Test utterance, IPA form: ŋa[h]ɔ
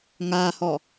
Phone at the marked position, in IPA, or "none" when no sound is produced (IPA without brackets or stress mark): h